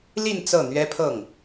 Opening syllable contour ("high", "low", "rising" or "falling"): falling